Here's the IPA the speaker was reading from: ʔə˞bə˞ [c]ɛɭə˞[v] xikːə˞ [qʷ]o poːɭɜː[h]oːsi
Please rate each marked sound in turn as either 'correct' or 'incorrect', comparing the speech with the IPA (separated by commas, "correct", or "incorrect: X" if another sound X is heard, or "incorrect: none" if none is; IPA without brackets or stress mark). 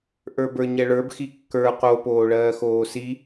incorrect: ɲ, incorrect: b, incorrect: q, incorrect: x